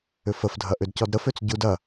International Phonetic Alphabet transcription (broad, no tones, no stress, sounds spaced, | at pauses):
ʏ f ə f dʱ ɐ ʔ ʏ d c ɔ d ɾ ə f ø t͡s ɟ u d ɐ